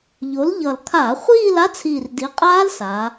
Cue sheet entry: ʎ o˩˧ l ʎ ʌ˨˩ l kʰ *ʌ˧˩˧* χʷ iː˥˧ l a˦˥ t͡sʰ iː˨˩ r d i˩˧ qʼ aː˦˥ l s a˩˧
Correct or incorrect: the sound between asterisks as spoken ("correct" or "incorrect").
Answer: incorrect